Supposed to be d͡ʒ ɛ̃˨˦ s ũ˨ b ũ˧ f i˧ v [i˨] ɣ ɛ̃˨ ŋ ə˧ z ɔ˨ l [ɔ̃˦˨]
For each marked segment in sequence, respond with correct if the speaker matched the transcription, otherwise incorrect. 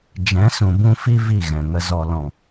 incorrect: i˦˨, incorrect: ɔ̃˨

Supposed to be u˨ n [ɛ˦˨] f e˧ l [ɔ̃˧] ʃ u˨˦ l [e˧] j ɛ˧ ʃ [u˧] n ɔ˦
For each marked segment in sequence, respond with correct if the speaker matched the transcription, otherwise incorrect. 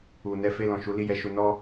incorrect: ɛ˧, incorrect: ɔ̃˨, incorrect: i˧, correct

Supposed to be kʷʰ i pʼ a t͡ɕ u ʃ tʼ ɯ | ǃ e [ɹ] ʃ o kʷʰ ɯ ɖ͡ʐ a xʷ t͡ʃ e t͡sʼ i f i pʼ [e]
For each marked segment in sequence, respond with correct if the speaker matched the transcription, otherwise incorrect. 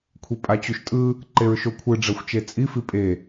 correct, correct

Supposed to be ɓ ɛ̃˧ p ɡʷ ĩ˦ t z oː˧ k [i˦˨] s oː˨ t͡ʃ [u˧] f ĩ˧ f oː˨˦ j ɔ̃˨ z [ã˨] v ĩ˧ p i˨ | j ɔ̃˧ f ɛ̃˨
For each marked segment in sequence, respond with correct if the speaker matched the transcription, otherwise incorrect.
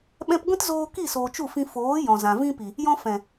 correct, incorrect: u˦˨, correct

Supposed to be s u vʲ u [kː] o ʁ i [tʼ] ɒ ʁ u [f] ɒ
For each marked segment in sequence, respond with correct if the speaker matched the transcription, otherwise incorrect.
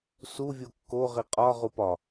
correct, incorrect: qʼ, incorrect: p

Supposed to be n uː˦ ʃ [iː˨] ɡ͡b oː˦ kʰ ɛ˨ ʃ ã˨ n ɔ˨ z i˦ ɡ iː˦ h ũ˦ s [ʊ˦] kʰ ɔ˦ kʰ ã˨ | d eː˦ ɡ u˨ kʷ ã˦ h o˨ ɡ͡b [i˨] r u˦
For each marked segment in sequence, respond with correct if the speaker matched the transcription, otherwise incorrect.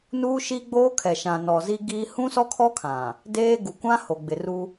incorrect: iː˦, incorrect: ɔ˦, incorrect: ɪ˨

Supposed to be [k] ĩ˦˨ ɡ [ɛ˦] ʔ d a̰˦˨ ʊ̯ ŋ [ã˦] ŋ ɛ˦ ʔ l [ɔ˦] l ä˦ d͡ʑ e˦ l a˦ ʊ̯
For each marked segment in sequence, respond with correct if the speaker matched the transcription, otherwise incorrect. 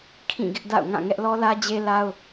incorrect: kʰ, incorrect: ɪ˦, incorrect: ã˦˨, correct

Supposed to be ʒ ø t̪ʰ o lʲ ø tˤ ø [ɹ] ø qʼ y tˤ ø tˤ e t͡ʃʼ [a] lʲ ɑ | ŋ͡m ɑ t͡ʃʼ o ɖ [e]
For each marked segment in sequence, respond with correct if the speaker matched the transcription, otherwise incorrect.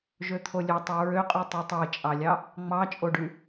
correct, incorrect: ɑ, incorrect: y

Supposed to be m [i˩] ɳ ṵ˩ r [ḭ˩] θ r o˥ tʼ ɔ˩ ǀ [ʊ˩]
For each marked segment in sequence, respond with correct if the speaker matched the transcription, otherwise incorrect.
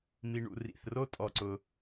correct, correct, correct

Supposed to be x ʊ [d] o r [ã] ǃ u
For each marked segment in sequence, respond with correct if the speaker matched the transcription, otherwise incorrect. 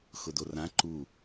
correct, correct

